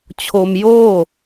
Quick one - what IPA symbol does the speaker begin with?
t͡ɕʰ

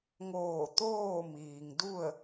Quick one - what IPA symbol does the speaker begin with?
ŋ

